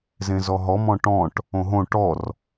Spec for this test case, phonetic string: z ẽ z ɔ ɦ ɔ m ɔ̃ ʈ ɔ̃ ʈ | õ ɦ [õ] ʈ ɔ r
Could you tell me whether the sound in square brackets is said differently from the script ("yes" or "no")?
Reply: no